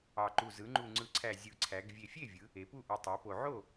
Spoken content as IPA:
ɑ˨˩ǃu˨˩ zɯ˩˧ŋ͡ǃu˨˩ŋ͡ǀɯ˨˩ǀʰæ˨˩ zʲɯ˨˩ǀʰæ˩˧ɡ vʲe˨˩fʲe˥˩vʲɯ˩˧ | e˩˧pu˥˩ʔu˨˩ tˤæ˩˧po˨˩ ʕo˥˩

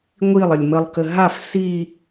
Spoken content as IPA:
ŋʷilˠəlʲ məlˠkə ɦaf si

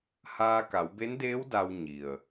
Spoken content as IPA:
haː˧ka˩˧wbe˧˥ndeː˧˥w da˧w ɲi˩ə̯

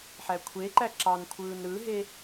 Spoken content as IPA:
ħækʷʰeǃæ ǁɑnkʷʰɯːn ɾɯɦe

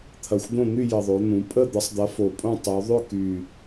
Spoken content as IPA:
t̪ʰɐ˨˩xʷd̪õ˥˨ n̪y˥˨jə˨˩ðˤo˩˧ n̪ũ˩˧ pʼə˥˨ d̪ə˨˥sˤd̪ɐ˨˥fo˨˩pʼõ˥˨ tˤu˩˧ ðˤʏ˥˨ky˨˩

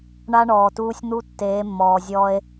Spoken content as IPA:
ɳa˦ɳɔː˨tuː˦sʲ n̪u˦ tːeː˨˦mːɔː˨zʲɔː˦e̯

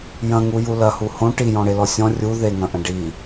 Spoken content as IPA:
jɐ̃ŋuju lɐhu hõ ʈijɔ̃ɽelɔ sʲɔ̃ rʲu ðeŋɐ̃ʔɐ̃ ɖi

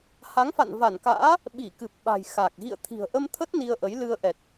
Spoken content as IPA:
ha˨˦ŋfa̰˧˨n va˧˩nka̰ː˧˥ | ɓi˧˩kɨ˨˩p̚ɓa̤˨˩j xa˨˩k̚ ɣḭ˧˨ə̯t̪ʰi̤˨˩ə̯ʔə˧mt̪ʰə˦˥t̚ ni˧ə̯ʔə˨˦jlɨ˧ə̯ ʔɛ˨˩t̚

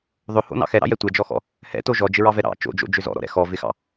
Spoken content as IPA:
ðˤɵho̰nɑ̰ xɛɾɑ̰jɛ tʷɛd͡ʒɔxɔ̰ | hɛ̰to ʒɔd͡ʒɪɹɑvɛ ɾɑ̰ t͡ʃo̰d͡ʒo̰d͡ʒʏ zɔ̰ɾɔ̰ɾɛ̰ xɔvɪxɑ̰

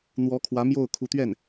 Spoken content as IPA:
n̪wɔ˧˥kʰwä˧˥ mjo˥˩ʊ̯kʰu˧˥t̪ɥɛ˥˩n

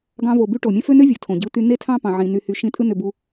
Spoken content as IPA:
ɡɑ̃˧vo˨by˧ ʈo˨mʲæ̃˦fø˦nø˦ vʲɯ˨tʰõ˨ɟɯ˧t̪y˧ ne˦tʰɑ̃˦pɑ̃˨ʕĩ˨ ny˨hy˨ʃĩ˨˦ tʼɯ˦nø˧bu˧

